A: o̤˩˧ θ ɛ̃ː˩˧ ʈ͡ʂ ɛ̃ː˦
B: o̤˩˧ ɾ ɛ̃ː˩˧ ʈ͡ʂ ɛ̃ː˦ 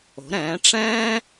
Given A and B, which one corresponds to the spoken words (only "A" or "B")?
B